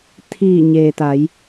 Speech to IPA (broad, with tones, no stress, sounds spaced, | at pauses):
t̪ʰ iː˧˩ ɲ eː˩ t̪ a˩˧ j